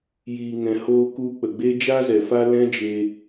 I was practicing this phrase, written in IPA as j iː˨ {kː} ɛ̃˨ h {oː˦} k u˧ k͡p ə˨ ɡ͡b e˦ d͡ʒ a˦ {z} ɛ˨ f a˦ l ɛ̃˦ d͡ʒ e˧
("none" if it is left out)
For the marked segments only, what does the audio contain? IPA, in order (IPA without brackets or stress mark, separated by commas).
ŋ, oː˧, z